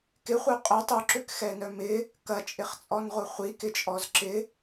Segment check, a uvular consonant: present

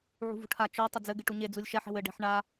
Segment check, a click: absent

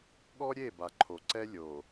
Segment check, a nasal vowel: absent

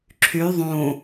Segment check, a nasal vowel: present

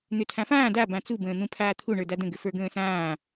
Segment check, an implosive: absent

